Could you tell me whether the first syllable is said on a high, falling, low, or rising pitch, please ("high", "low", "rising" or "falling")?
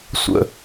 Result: high